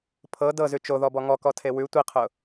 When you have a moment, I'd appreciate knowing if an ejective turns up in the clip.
no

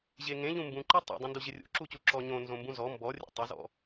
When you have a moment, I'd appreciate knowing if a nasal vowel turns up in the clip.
yes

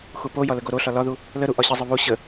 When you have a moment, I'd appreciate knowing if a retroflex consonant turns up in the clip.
no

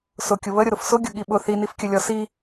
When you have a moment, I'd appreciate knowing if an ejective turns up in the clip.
no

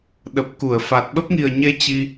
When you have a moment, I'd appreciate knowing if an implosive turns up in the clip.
yes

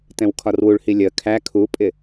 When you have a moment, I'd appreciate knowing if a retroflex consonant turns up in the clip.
yes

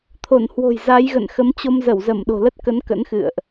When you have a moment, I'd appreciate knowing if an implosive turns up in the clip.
yes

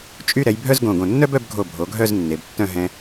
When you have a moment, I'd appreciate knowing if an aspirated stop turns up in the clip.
no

